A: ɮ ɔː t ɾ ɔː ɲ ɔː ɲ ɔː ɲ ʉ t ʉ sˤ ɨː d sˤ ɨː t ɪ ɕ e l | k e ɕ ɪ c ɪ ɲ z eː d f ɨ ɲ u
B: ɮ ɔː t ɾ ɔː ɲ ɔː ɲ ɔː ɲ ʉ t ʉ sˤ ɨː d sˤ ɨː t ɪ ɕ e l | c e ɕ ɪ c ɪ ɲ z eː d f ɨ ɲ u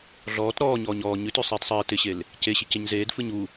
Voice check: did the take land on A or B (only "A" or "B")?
B